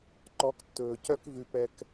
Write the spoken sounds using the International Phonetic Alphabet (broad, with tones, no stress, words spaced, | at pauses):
ǃɔ˨˦ktːɵː˨cœ˦k vʉ˨pɛ˧k